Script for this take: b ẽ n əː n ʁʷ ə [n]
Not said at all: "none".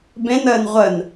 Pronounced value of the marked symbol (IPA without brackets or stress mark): n